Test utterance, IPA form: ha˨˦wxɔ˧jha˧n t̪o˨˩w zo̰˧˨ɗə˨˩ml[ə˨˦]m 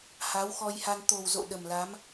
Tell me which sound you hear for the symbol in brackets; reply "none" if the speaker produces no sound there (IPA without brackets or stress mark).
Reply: a˨˦